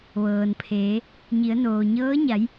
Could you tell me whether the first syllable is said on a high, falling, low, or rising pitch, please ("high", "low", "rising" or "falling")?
low